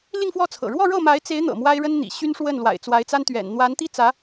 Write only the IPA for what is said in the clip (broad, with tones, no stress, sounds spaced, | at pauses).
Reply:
l i˥˧ ŋ f w ɔ˥˩ t͡sʰ ɤ̰˨˩ ɻ w ɔ˥˧ ɻ ɤ˥˩ m a˧˥ ɪ̯ t͡s e˧˥ ɪ̯ n̪ ɤ̰˨˩ m w a˥ ɪ̯ ɻ ə˥ n n̪ ḭ˨˩ ɕ y˥ n ʂ w ə˥˩ n l w a̰˨˩ ɪ̯ t͡s w a˧˥ ɪ̯ t͡s a˥ n t̪ ɥ ɛ̰˨˩ n n̪ w a˧˥ n t̪ i˥ t͡s ä˧˥